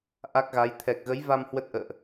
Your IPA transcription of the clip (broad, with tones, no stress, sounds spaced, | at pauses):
ʔ a˦˥ k̚ ɣ a˨˦ j t̪ʰ ɛ˨˩ k̚ ɣ ə˨˦ j v a˧ m h w ə˦˥ t̚ ʔ ə̰ː˧˨ ʔ